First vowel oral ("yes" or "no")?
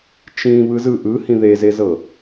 no